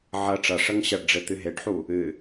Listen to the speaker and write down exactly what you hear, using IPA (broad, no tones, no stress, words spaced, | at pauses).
ʕɐ ʈ͡ʂɐʂɐŋ ɕɐɖɖ͡ʐe t̪ɨɦeɖħu | ɨ